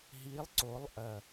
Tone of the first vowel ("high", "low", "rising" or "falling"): rising